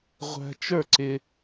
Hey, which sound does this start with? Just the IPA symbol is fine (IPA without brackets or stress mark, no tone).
ʁʷ